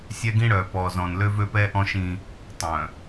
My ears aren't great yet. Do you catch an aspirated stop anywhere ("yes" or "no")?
no